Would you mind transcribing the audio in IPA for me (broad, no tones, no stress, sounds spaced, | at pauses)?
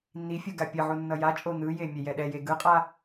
nː i fʲ u ɡ a pʲ ʌ ʕ u nː ʌ j a t͡ʃʼ o n̪ ɯ j e mʲ ɛ j ɛ ɗ ɛ j e ɡ ɯ qʼ a